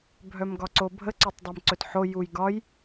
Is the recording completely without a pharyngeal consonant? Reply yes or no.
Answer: no